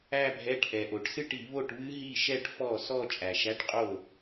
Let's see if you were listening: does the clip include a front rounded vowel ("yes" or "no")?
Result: no